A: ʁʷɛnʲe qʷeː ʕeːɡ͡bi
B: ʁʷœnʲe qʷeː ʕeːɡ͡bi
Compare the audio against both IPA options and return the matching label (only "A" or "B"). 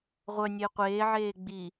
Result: B